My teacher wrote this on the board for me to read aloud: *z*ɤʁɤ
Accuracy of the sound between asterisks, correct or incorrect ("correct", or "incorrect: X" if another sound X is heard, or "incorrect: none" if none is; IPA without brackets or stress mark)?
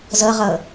correct